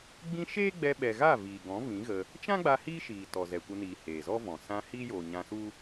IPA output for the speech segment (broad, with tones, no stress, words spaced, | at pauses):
ɡ͡bĩ˦ ʃeː˦ɡ͡bɛ˧ɓɛ˨ɣa˦˨ viː˨ɡɔ̃˨˦ vĩ˨˦ɣə˧ | t͡ʃã˦ɡ͡ba˧ hiː˦ʃiː˨ tɔ˨zɛ˨kʷə˧niː˨ heː˨zɔ˦vɔ̃˨ sã˧ hiː˦joː˨ ɲã˧su˦